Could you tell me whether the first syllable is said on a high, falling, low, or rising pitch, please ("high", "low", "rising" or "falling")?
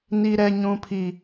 high